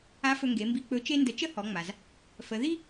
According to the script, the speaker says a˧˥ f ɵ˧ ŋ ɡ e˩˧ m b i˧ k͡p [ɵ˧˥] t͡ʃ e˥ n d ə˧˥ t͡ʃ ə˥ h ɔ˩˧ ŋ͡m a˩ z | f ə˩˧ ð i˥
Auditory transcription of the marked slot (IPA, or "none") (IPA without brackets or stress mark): ɵ˧˥